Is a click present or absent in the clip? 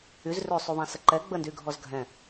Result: present